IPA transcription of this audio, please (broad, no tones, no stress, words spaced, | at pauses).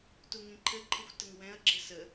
tuŋĩǃʰɘǃʰɯxʷ təŋwɛ̃ɐ̯ɡ͡ǁɘ sə